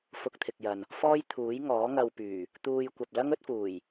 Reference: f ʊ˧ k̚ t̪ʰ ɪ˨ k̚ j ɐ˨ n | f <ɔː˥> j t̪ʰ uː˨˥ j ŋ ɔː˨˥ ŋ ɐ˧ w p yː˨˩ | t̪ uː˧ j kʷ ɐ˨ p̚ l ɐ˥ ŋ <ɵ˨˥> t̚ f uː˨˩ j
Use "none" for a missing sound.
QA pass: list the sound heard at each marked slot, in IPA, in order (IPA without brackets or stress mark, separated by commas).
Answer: ɔː˥, ɵ˨˥